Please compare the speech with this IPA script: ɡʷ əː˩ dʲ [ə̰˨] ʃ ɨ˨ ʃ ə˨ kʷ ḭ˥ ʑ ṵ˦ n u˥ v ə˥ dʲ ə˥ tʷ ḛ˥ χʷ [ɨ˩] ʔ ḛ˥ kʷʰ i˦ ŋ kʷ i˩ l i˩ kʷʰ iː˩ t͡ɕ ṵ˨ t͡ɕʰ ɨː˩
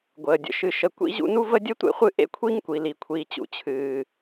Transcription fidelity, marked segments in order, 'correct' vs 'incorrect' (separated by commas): correct, incorrect